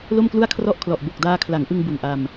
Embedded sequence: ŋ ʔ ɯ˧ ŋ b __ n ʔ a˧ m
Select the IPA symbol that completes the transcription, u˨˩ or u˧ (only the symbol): u˨˩